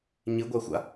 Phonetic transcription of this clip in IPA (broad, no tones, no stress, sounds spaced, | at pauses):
ɲ ɨ ɡʷ a xʷ a̰